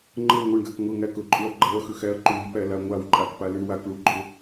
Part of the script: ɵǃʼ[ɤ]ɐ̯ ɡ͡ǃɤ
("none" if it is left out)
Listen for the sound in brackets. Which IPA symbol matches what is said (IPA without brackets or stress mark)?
ɵ